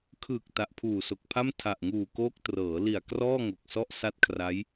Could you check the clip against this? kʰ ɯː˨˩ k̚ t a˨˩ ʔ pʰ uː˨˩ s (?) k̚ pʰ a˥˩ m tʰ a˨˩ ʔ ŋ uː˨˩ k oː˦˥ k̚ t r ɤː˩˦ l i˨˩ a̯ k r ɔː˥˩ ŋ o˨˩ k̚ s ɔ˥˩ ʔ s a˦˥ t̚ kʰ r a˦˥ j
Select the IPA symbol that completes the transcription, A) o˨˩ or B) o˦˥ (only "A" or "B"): A